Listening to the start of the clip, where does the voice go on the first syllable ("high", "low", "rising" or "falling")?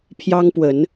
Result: high